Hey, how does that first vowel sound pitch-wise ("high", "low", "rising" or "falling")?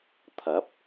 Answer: rising